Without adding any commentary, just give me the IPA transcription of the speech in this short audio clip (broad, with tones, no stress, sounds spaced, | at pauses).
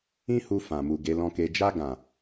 ĩ˦ h u˧ f ã˨ m u˨ ɡ e˨˦ l ɔ̃˧ k e˧ d͡ʒ a˧ ɡ ã˨